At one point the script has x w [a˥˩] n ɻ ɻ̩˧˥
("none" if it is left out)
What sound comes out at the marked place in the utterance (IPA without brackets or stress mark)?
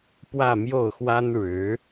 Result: a˥